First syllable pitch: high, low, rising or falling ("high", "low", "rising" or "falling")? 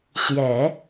low